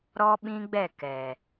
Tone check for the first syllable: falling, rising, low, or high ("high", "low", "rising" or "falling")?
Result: high